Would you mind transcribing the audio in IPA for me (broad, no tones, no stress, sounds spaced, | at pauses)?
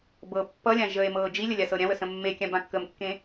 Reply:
b ɤ pː ʌ lʲ ã ʒ ə e̯ m ɤː d͡ʒ i lʲ ə lʲ a s ɤ ɾʲ ã w ə s ə̃ mː e kʲ ã b ã kː ə m kː ẽ